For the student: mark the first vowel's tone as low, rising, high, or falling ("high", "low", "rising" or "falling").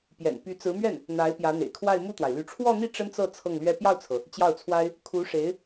low